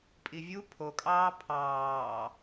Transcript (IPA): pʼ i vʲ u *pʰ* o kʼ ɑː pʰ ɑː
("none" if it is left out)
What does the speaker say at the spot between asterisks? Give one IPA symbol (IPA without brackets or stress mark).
pʰ